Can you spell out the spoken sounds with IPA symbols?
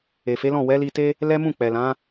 e˨ f e˨˦ l ɔ̃˦˨ w ɛ˨˦ l i˧ t e˦ | l ɛ˦ m ũ˦˨ k͡p ɛ˨ l ã˨˦

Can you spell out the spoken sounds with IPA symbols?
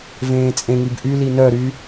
v ẽː t͡sʼ ẽ ŋ i b ʔ y l i n œ ɾ y

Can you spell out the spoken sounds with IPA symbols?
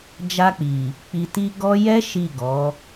d͡ʒ a˧ k͡p i˨ | k͡p i˨ t i˧ ɡ ɔ˦ j ɛ˦ ʃ i˦˨ ɡ ɔ˨˦

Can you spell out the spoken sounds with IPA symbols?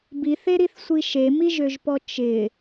b i θ e ɾ i θ sʷ i ʃ e m i ʒ ø ʒ p ɔ t͡ʃ ɪ

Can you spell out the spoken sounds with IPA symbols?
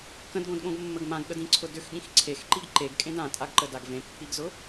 k ə̃ d ɡ õ d ɠ õ ɡ mː ə ɡ m ã ɡ ɠ ə d ĩ ǀʰ ʊ d ʏ x ɠ ĩ x ǀʰ e x ǃ i ɡ ǃ e ɡ kʼ ẽ d ã tʼ a ɡ ǃ ə d a ɡ v ẽ pː i ɡ z ʊ

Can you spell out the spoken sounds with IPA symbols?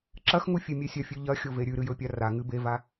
ǁ ɐ x ŋ u fʲ e mʲ e sʲ ɐ fʲ ʉ ʎ ɐ xʲ o v e ɾʲ ʉ ɾ ɨ j ɵ pʲ a r a ŋ ɨ b e v a

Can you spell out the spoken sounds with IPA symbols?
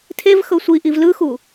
tʰ e v x ɤ sʷ i ʔ i v l ɯ x u

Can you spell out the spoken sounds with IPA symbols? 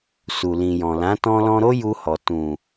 s u˨ l ĩ˨ j ɔ̃˨ l ã˨˦ t ɔ̃˧ l ɔ̃˧ ɾ o˦ j u˧ h ɔ˨ t ũ˨

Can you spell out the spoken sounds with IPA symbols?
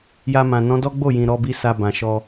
j a˧ m ã˨ n ɔ̃˨˦ d ɔ˦ ɡ͡b o˦˨ j ĩ˨ ɾ ɔ˧ b i˧ s a˧ b ã˨ ʃ ɔ˧

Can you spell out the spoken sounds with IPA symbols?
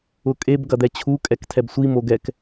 ʊ kʼ e b ɡ ɐ d̪ ɛ t͡ɕʰ u kʼ ɛ k tʰ ɛ b sʷ i m o ɡ ɛ k

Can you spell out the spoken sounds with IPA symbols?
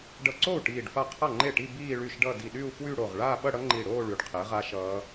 ɖ ʌ˧˩ ǀ o˥˩ u̯ ʈ iː˧˩ ɖ f a˥˩ qʰ ʌ˥˩ ŋ͡ǃ e˥˩ ʈ i˥˧ b iː˥˧ ɭ y˥˩ ʃ ɖ ʌ˥˧ d i˧˩ ɗ y˥˧ u̯ f w y˥˧ ɽ o˧˩ ʁ ɭ aː˥˧ ɓ ʌ˥˧ ɽ ʌ˦˥ ŋ͡ǃ i˧˩ ɽ oː˥˧ ɭ y˧˩ ɖ qʰ e˨˥ ʁ a˦˥ ʃ ʌː˦˥

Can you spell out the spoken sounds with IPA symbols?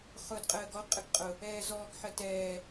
χ ʊː d qʼ əː ɡ ɔ qʼ ə ɡ qʼ ʊ | ɛː z ɔː ɡ ħ ə t ɛː

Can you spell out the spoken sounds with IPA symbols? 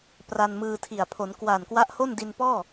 p r a˧ n m ɯː˧ tʰ i˨˩ a̯ pʰ o˩˦ n k w aː˨˩ n k w a˦˥ ʔ h o˥˩ n d i˧ n p ɔː˥˩

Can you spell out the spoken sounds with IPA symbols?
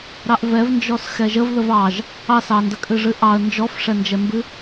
ɾ ɑ ʔ v ɛ v n d͡ʒ ɔ s x ɛ ʒ ə v ð ə v ɑ ʒ | ɑ s ɑ n d ə kʼ ɨ ʐ ɨ ʔ ɑ ə̯ n d͡ʒ ɔ f ʂ ɛ n d͡ʒ ɛ m b ɨ

